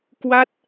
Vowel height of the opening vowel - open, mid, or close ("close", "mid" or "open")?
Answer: open